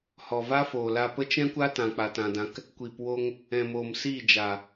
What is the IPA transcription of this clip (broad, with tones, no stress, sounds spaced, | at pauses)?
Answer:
h ɔ˨ v a˦ f oː˨ l a˧ p ə˦ t͡ʃ ɛ̃˦ kʷ a˦ t ã˨ k͡p a˧ t ã˧ d ã˦ k | kʷ iː˨ p w o˧ ŋ | ɛ̃˨ m oː˨ m s iː˦˨ d͡ʒ a˨